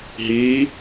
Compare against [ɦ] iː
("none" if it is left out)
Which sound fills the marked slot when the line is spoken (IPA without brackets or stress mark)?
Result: ɦ